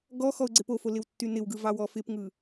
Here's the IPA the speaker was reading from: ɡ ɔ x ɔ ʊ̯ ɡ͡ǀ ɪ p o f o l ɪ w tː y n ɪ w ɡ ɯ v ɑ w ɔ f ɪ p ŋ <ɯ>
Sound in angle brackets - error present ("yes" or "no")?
no